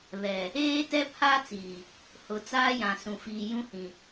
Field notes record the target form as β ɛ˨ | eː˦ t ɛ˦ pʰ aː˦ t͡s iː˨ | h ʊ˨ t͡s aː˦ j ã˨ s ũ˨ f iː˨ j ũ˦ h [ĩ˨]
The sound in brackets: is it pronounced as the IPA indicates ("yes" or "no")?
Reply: yes